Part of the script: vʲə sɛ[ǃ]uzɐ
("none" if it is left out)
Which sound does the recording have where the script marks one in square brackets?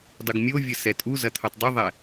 tʼ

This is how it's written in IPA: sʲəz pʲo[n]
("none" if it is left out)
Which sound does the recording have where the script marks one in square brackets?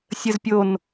n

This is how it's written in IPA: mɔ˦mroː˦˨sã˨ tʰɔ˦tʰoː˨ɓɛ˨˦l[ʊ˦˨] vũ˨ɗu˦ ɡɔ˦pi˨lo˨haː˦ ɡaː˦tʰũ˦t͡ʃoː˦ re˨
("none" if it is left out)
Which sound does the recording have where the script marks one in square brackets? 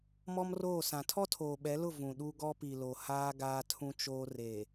ʊ˦˨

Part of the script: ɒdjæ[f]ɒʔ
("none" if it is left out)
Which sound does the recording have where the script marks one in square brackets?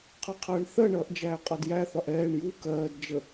θ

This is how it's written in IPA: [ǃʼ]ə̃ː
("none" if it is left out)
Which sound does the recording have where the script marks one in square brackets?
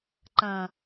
ǃ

